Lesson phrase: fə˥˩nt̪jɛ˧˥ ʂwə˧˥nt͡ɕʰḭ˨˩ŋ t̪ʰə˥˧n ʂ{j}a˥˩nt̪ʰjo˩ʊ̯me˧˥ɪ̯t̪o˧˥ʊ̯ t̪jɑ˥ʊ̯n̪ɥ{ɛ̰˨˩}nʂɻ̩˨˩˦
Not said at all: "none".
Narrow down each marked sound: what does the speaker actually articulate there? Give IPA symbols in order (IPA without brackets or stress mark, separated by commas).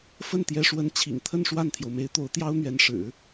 w, ɛ˧˥